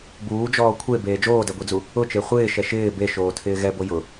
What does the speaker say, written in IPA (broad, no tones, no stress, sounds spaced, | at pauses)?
b uː d͡ʒ ɔː kʷʰ e b eː d͡ʒ oː d ɛ ɡʷ e d͡z u | ʊ t͡ʃ e χʷ ɪː ʃ ɛ ʃ ɪː b e ʃ oː tʰ ɪː ɣ ɛ b o j ʊ